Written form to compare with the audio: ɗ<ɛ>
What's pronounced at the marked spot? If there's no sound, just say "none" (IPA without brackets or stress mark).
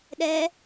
ɛ